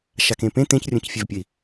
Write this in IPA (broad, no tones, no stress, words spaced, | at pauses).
ʃakẽpẽ t̪ẽcrʲõcfʲɛvpʲɘi̯